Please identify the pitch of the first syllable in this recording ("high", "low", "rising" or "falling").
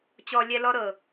high